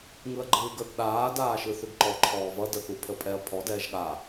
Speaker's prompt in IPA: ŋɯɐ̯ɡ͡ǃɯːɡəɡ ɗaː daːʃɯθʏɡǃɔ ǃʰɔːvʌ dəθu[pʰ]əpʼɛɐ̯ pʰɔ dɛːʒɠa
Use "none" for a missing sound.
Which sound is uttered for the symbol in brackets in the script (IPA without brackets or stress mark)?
pʰ